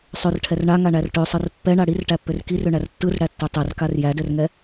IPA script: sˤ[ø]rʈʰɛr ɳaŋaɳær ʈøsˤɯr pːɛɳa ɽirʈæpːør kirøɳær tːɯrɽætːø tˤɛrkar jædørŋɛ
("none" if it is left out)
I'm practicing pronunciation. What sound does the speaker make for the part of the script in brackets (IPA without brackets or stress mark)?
ø